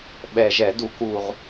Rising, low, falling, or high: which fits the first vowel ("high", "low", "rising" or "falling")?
low